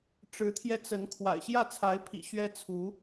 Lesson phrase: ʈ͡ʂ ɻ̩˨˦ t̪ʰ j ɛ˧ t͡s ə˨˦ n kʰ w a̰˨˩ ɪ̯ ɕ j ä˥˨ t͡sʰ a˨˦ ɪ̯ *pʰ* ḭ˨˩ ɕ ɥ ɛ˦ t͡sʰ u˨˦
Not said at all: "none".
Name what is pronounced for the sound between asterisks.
pʰ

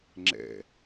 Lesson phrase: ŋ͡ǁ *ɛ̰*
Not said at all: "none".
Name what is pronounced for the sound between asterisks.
ɛ̰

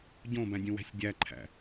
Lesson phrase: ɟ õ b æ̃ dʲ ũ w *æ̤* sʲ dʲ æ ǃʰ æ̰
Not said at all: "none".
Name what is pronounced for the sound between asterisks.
æ̤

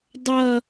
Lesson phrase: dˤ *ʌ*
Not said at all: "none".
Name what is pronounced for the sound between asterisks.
ʌ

